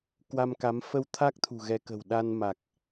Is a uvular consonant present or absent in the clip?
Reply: absent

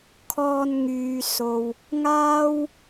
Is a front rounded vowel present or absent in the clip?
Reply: present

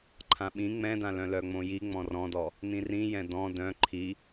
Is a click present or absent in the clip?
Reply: present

